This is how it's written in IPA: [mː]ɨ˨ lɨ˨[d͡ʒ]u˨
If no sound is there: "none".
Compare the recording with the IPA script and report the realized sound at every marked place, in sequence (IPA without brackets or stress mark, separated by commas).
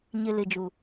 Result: ɲ, d͡ʒ